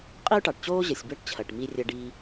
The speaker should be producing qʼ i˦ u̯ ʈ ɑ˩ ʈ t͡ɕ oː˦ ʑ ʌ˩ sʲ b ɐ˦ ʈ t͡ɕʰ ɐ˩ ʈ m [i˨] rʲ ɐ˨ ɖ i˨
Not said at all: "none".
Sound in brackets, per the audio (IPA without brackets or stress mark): i˨